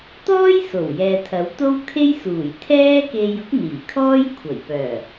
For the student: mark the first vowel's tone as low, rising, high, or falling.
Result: high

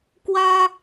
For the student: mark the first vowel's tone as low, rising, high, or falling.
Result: high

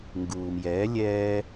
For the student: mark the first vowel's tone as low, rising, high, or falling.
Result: low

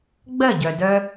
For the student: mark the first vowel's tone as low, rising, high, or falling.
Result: falling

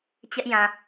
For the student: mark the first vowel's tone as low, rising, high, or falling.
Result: high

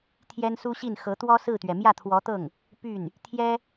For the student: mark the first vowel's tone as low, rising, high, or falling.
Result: high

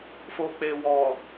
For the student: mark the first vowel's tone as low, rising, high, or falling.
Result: low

